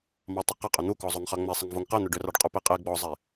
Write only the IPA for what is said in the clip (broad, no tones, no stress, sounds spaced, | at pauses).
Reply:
m ɑ tˤ ʏ q ə qʼ ʏ n̪ u k ɔ zˤ o ŋ χ ɑ ŋ͡m ɛ sˤ ə ŋ v o ŋ q ɛ n̪ ʏ ɖ ʏ r ɑ ɖ qʼ u p e qʼ e ɡ͡b ɔ zˤ e